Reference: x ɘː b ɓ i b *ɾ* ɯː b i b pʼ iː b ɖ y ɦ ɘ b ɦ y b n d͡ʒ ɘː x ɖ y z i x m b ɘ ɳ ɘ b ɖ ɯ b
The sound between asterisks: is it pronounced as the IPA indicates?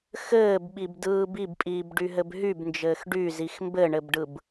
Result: no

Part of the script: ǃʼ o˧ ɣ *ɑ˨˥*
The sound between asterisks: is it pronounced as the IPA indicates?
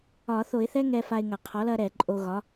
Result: no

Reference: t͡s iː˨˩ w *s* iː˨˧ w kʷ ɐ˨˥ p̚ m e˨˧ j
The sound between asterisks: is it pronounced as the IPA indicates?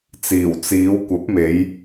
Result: no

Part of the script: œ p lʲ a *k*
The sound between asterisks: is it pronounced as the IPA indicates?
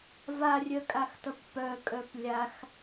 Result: no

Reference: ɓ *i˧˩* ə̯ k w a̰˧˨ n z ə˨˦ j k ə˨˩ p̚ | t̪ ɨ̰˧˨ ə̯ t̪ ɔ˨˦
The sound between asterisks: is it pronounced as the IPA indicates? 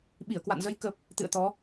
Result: yes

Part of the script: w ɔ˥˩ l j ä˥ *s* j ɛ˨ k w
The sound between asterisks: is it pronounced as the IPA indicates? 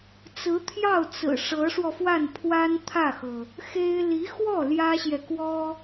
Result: no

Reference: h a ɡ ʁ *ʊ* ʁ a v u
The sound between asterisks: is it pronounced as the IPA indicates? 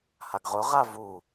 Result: yes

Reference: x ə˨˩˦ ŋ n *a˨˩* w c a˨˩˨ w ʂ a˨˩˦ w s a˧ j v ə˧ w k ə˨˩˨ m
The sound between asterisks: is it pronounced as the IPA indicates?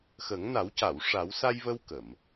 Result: no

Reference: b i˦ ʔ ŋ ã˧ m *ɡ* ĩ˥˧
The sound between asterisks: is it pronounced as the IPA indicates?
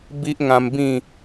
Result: no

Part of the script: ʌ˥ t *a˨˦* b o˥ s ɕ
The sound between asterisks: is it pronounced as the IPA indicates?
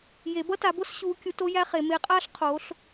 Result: yes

